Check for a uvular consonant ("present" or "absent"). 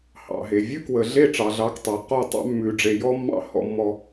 present